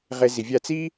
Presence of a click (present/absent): absent